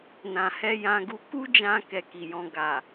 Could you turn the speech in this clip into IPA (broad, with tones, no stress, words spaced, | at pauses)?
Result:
nã˨hɛ˧ jã˧ɡu˧ ku˦d͡ʒã˧ kɛ˧ki˨jɔ̃˧ ɡa˨